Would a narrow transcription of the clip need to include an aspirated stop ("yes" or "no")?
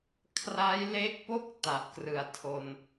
yes